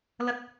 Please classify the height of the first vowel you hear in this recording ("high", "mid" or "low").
low